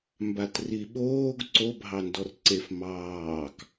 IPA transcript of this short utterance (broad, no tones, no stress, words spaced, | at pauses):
mbatriɓoːɡ ǀobʱɑndɔr ǀef mɑːk